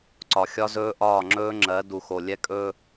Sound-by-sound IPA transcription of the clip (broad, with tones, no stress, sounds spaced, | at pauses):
ǀ ɒ˨ xʲ ɒ˦ z ɵː˦ ʔ ɒː˦˨ ŋ͡ǁ ɵː˦ ŋ͡ǁ ɜ˨˦ d u˨ x o˨ lʲ ɛ˦ kʼ ɵ˦